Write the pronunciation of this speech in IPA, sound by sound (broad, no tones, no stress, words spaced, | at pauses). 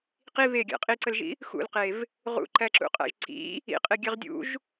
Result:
qi βeɡʲæ̰ qʼiǀəlʒḭ | xṵlqev | ʁṵǃæǁṵqʼæ̰ʒ ǀḭ | ḭqʼeɡʲeʁ dʲṵʒ